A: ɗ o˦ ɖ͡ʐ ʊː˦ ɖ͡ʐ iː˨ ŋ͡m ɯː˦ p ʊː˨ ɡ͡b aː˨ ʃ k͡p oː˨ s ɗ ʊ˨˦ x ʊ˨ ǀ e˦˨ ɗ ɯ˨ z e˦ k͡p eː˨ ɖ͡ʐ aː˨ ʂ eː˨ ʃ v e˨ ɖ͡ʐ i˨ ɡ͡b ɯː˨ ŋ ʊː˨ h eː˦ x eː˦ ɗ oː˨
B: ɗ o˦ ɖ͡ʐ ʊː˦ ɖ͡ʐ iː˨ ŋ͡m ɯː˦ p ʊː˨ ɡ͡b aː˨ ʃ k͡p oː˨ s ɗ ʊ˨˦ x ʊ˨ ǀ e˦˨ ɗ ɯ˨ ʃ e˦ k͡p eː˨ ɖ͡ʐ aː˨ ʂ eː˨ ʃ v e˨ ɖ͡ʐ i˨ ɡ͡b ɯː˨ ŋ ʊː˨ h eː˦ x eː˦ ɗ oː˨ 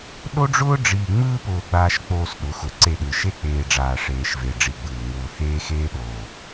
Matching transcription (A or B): B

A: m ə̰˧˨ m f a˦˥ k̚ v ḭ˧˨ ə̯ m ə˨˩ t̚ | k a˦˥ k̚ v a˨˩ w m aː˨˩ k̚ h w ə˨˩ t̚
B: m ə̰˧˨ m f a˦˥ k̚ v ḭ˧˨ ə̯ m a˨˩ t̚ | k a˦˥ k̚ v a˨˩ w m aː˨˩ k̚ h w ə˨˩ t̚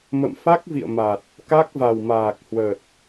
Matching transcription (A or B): B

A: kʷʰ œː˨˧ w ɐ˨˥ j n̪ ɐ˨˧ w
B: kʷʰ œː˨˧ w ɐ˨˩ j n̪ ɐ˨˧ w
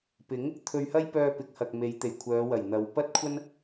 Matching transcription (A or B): B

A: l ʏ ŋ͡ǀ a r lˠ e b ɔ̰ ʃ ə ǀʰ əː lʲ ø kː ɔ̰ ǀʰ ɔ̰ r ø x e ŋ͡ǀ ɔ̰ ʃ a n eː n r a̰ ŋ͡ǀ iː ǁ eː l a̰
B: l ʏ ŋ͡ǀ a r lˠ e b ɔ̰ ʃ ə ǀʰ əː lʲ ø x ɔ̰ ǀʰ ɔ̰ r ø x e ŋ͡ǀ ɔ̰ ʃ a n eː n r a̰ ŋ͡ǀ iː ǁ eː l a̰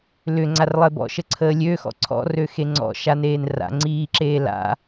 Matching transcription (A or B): B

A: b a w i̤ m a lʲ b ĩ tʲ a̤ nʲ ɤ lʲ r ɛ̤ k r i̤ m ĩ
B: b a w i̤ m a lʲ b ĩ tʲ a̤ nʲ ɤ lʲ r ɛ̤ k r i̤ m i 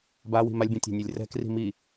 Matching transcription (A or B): B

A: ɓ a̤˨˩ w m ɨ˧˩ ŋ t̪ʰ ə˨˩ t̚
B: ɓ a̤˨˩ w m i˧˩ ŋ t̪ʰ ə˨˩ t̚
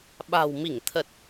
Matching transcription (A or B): B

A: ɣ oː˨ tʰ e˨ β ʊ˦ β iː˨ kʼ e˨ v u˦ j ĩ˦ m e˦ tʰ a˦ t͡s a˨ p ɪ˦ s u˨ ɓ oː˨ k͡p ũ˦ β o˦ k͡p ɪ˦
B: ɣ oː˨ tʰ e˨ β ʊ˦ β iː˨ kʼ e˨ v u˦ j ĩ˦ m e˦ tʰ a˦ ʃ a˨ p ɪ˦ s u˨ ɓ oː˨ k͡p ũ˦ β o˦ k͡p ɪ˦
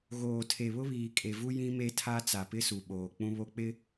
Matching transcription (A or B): A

